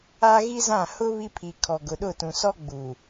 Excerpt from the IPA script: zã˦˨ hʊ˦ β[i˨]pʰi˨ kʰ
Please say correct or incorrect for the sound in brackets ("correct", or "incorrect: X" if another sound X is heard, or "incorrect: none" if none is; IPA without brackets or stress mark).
incorrect: i˦